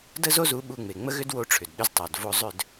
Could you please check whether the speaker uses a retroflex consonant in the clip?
yes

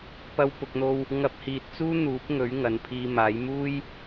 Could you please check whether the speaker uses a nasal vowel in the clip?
no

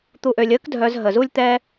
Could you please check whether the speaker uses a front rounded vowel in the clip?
yes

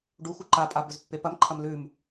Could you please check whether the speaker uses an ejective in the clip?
yes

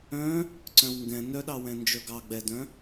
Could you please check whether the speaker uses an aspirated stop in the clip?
no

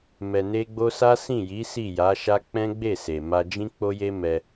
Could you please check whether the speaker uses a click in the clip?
no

